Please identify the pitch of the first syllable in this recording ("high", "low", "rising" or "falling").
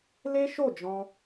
high